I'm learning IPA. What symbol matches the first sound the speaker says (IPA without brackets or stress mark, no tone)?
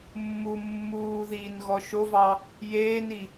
mː